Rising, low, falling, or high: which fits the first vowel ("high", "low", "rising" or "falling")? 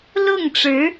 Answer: falling